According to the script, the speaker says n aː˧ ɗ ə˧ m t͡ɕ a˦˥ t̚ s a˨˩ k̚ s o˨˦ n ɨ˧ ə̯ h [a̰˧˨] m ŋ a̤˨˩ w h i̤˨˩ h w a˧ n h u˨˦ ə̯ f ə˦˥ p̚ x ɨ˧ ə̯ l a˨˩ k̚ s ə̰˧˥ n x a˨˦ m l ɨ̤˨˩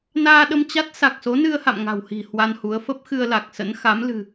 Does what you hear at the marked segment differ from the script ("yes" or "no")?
no